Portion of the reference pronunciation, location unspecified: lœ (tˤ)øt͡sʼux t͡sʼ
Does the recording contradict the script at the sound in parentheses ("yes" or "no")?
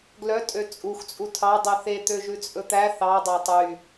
yes